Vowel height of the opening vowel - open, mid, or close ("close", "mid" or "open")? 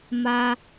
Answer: open